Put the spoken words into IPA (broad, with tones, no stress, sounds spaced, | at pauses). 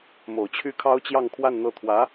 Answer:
m o˨˩ ʊ̯ t͡ɕʰ y˥ kʰ ɑ˥ ʊ̯ t͡ɕ j ɑ˥˧ ŋ kʰ w a˥˧ n n̪ ɤ˥˩ t̪ʰ w ä˧˥